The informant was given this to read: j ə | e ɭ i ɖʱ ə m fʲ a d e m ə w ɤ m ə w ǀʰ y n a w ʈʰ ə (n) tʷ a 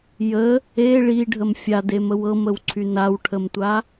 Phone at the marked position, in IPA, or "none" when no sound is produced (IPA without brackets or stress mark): m